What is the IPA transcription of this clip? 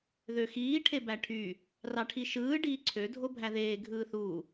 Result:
ðøxiː ʈʰebæʈʰy | rɑʈʰiʃɯː ɖiːǀʰø dʱobʱæðeː ɡʱɯːθu

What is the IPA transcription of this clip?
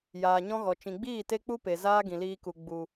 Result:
jaː˨ɲɔ̃˦ɣɔ˨ t͡ʃĩ˨ɡ͡biː˦˨ te˦k͡pu˦pe˨ zaː˦ɡĩ˨liː˧ku˨ ɡ͡bu˨

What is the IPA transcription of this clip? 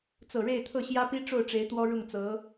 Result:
t͡sɤ˨˩ɻe˥˧ɪ̯t̪ʰɤ˥˩ ɕjä˥pi˥ʈ͡ʂo˥˩ʊ̯ʈ͡ʂe˧˥ɪ̯ t̪wɔ˥ɻʊ˥˩ŋt͡sɤ˧˥

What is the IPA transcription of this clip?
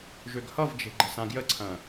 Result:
ʒøɡhʌvd͡ʒe̤ ɡ͡ǃə̤sãɡjəǀʰɐ̃

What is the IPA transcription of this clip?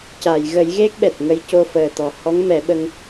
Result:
ca˨˩˨jɣə˨˩˦j ɣe˦˥k̚ɓɛ˨˩t̚ŋə˧j co˧fəː˨˩ t̪ɔ˨˩ hɔ˧˥ŋmɛ˨˩˦ɓə˧ŋ

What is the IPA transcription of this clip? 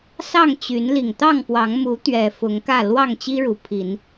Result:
sɑ˥˨ŋt͡ɕy˨˦n li˨˩ŋt̪ɑ˥˨ŋpwɑ˨˦ŋ mu˨˦t̪ɥɛ˨˩ fʊ˨˦ŋkä˥˨ lwɑ˥˨ŋt͡ɕi˦ɻu˨˩pʰi˨˦n

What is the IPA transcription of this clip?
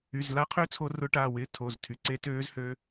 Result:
y˩˧˩zla˧˥qʰø˧˥ t͡sʰo˧˥rʊ˧˥ʈaː˩˧˩ wɪː˧˥tʰo˩˧˩ztʰy˩˧˩ ǀe˧˥ tøː˧˥zhø˧˥

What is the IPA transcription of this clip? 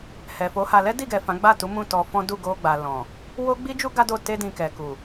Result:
hɛ˨fo˨˦ha˧ lɛ˦di˦˨ɡɛ˨ fã˨˦ɡ͡ba˦˨ tu˨˦ mũ˦˨tɔ˧fɔ̃˦ du˦˨ɡo˧ɡ͡ba˨ lɔ̃˨ | wo˦ɡ͡bi˦d͡ʒu˦ ɡa˦do˦˨ te˧dĩ˨ kɛ˨ku˨

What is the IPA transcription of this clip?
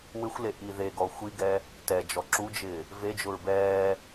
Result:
wɪxʷle ʔiðeɡɔ xʷiɡɛ | tɛd͡ʒɔ ǁud͡ʒɪː | ved͡ʒʊɹ bɛː

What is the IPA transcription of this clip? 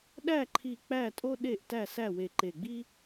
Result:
ɗæ˥˩ǃʰi˧˩ k͡pæ˥˩tʼo˥ ɗe˥˩ʔtæ˥˩ sæ˥˩we˧˩ǃe˧˩ɡ͡bi˥

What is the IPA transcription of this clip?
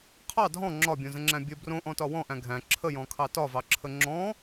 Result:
qʰɑ dʱɔ̃ ŋ͡ǁɒbʲõzə̃ŋ͡ǁæ̃ bʲə brõʔɔ̃tɒ wɔ̃ʔæ̃ ɡʱæ̃ ǁʰəjɔ̃kʰɑ tɒvɑǁʰə ŋ͡ǁɔ̃

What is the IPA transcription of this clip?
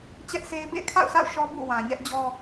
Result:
t͡ɕɛ˦ʔse˦ɪ̯ bḛ˦˨ɪ̯kʰa̰˦˨ʊ̯sʰa̰˦˨ʊ̯ ʃɔ˦bṵ˦˨ wã˨ɲɛ˦ʔd͡ʑɔ˦

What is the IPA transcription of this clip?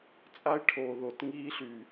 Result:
t͡sʼa˦ɪ̯ʈʰoː˨ ðo˨tŋiː˦ɬy˨

